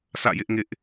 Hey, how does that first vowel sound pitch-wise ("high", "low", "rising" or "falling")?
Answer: falling